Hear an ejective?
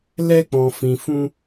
no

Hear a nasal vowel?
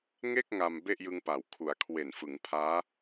no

